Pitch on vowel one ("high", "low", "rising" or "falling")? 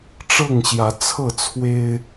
falling